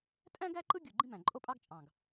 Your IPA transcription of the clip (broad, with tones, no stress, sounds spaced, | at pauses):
tʼ æ̃˥ ɡ æ˥ ǃ ɯ˥ ɡʲ u˨˩ ɡ͡ǃ ĩ˥ m æ̃˨˩ ǃʼ o˥ pʼ ɑ˥ ɡ t͡ʃʼ ɑ̃˨˩ ɡ